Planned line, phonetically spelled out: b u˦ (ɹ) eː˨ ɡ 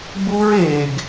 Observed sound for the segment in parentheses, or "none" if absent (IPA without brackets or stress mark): ɹ